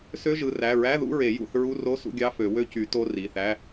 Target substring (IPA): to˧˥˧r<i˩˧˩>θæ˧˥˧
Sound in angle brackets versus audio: correct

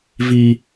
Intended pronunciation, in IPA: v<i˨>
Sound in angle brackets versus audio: incorrect: i˦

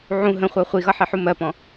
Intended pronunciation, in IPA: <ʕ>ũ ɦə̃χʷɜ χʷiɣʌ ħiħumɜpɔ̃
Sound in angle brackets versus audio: correct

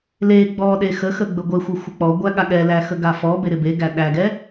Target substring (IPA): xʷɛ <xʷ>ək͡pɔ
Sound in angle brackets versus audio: correct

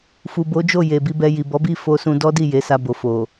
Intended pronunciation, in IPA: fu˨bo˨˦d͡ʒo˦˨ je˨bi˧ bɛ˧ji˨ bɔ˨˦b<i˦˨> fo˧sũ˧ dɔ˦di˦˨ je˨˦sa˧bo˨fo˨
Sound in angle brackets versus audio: correct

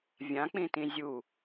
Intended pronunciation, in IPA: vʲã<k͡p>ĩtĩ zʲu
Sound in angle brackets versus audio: correct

